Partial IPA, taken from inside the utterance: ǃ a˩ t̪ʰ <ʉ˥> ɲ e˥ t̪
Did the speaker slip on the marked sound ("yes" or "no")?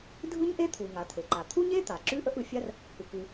yes